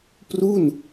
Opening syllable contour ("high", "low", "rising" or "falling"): falling